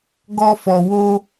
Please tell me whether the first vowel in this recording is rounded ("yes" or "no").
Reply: yes